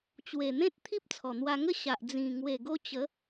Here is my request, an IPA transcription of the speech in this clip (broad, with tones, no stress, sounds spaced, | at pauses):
t͡ɕ w e˨˩ n̪ ẽ˦ t̚ t̪ʰ i˦ p̚ t͡sʰ ɔ˨˩ n̪ w a˧ ŋ ə˦ ɕ a˨ ʔ d͡z ĩ˨˩ ŋ w e˨˩ ɡ o˧ t͡ɕ ə˨˦